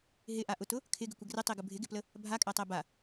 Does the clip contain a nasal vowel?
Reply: no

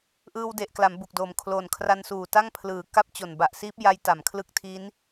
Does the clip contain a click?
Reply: no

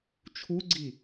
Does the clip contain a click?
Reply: yes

